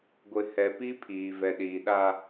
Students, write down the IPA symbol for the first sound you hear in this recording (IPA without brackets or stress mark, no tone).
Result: ɡʷ